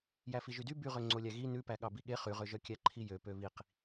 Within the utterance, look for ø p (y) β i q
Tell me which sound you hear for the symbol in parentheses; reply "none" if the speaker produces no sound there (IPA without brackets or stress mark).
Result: ø